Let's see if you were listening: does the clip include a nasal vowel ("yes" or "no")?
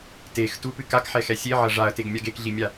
no